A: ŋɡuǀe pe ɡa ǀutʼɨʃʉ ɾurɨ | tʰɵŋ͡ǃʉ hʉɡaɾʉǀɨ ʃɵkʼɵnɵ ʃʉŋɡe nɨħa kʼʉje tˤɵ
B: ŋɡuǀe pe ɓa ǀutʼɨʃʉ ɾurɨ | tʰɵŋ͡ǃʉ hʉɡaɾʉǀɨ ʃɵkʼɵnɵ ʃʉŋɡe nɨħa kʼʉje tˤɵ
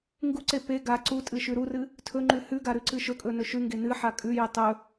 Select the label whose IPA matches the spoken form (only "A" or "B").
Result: A